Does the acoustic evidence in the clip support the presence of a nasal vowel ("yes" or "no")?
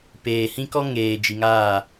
yes